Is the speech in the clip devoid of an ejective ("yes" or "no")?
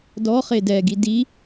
yes